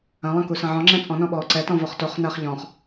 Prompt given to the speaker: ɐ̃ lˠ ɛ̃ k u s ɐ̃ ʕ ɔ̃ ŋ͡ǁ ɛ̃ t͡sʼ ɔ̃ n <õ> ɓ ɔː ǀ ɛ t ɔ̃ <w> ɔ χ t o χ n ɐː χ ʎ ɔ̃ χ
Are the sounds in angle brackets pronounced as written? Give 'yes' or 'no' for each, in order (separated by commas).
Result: no, no